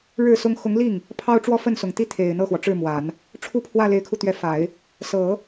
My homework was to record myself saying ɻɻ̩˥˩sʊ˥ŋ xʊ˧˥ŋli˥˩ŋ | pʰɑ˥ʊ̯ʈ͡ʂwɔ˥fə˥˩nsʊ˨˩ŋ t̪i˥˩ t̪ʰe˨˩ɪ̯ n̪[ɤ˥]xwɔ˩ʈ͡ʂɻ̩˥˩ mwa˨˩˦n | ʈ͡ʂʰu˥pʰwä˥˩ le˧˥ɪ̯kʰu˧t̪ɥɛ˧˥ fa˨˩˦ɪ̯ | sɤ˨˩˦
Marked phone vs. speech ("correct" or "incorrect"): incorrect